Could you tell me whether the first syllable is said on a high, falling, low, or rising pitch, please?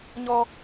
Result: high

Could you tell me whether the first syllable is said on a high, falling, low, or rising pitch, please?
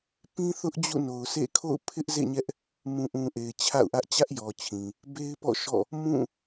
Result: high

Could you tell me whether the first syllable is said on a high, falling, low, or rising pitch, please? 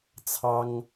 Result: high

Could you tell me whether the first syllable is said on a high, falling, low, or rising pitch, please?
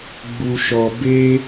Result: low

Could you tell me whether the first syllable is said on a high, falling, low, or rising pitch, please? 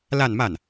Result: falling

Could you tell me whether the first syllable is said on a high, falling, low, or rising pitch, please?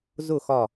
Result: falling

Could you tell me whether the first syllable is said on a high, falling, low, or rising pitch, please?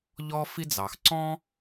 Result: high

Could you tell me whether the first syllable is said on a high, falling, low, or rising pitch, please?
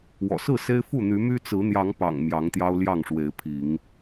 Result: low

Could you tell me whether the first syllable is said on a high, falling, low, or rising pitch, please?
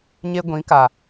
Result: high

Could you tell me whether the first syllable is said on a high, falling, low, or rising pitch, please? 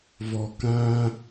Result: low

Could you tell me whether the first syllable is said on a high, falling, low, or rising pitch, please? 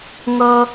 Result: high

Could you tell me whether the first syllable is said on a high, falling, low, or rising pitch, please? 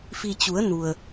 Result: low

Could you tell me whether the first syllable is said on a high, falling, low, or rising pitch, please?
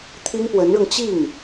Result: high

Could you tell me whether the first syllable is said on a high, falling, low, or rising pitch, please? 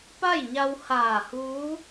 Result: falling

